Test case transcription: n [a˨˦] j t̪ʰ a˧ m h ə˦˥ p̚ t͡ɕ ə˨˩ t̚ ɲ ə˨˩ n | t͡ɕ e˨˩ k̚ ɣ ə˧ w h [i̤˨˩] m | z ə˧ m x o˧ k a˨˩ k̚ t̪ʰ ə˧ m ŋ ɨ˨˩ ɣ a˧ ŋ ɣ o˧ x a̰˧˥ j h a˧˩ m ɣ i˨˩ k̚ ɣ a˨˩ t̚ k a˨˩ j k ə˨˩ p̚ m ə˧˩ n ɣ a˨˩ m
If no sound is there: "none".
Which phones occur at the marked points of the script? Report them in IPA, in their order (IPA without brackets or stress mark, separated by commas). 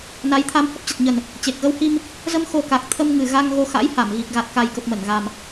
a˨˦, i˧